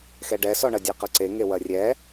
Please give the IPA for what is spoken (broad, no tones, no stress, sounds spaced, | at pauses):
x ɛ ɖ ɛ s ɔ ɳ ɐ dʲ ɛ q ɐ ǀ e ŋ e w ɐ rʲ ɛ